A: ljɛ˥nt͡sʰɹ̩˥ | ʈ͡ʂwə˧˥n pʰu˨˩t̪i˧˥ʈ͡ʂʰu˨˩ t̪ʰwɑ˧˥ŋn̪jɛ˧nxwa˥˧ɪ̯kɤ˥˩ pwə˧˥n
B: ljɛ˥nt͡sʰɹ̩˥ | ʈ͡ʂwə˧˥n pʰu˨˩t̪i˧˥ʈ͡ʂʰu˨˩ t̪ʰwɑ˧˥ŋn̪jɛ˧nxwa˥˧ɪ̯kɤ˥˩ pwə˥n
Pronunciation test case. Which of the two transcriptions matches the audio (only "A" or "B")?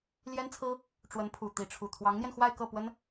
B